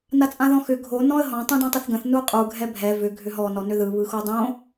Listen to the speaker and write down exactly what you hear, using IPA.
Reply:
n a t͡sʼ ã ð ɔ̃ x ʏ ɡʱ o n ɔ̃ ə̯ ɦ ɔ̃ tˤ ũ d õ tˤ ʏ θ ɡ ə̃ θ n u qʼ u ɡʱ ɛ bʱ ɛ v ʏ ɡʱ ʏ ɦ ɔ n ɔ n ʏ ð ɯ β ɯ x o dˤ õ

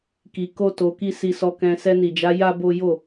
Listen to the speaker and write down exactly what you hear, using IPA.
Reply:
k i˧ k o˦ t o˧ k i˦ s i˧ s ɔ˧ k ɛ̃˧ s ɛ˧ n i˨ d͡ʒ a˨˦ j a˦ b o˦ j o˦˨

